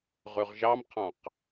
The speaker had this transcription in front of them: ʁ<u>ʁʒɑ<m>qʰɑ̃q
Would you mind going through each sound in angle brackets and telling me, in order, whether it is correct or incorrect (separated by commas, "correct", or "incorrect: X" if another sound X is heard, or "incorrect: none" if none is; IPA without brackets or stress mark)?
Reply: incorrect: ʉ, correct